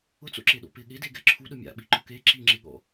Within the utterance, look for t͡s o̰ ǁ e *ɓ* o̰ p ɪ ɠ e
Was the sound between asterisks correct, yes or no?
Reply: no